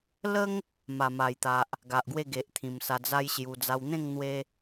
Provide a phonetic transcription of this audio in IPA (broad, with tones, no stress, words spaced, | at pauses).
lə˦ŋ | ma˨˩ma˨˩jt̪a˨ʔ | ɡa˨ʔɡwe˥˧ɡe˨ʔt̪ʰĩ˨˩m sa˧d͡za˦jɕju˧ d͡za˧wn̪ẽ˥˧ŋ n̪we˦